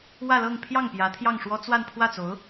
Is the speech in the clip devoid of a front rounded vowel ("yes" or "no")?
yes